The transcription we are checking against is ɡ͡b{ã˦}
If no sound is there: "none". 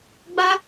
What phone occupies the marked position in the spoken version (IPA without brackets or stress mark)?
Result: a˦